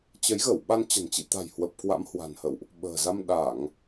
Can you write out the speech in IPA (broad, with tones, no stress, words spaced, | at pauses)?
t͡ɕə˨˦jɣə˧˩w ɓa˧nt͡ɕə̤˨˩nt͡ɕḭ˧˨t̪a̤˨˩j hwə˨˩p̚kwa̰˧˥mhwa̤˨˩nhə̰˧˨wʔ | ɓə̤ː˨˩za˧m ɗa˧˩˨ŋ